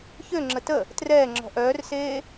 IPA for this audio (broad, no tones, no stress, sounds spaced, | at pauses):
ç ø ŋ͡ǁ ə t ə | t r ɛː ŋ͡ǁ ɔ̤ ʔ œː r s eː